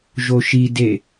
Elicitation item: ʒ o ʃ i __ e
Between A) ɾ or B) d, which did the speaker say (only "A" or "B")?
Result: B